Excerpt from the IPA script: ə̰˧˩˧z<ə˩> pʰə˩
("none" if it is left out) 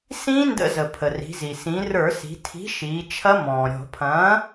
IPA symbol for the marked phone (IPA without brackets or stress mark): ə˩